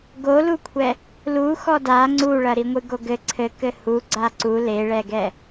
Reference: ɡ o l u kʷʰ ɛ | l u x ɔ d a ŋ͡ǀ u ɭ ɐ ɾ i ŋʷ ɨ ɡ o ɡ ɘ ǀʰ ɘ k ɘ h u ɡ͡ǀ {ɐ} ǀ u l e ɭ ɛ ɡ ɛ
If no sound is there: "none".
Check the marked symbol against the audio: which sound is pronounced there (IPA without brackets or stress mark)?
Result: a